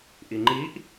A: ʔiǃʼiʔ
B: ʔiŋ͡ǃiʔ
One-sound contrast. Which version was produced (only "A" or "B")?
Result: B